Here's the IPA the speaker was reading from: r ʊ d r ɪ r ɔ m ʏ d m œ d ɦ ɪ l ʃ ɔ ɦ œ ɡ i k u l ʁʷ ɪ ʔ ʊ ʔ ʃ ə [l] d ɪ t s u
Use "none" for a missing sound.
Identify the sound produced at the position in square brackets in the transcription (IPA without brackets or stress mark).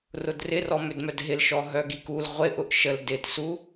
l